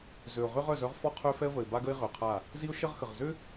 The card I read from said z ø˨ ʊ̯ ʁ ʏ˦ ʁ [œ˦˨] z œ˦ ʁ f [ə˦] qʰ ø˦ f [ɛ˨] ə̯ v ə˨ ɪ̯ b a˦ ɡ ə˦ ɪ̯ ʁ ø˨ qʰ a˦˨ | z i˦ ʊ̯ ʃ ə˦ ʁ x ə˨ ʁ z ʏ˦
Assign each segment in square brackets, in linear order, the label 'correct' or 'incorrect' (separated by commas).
correct, incorrect, incorrect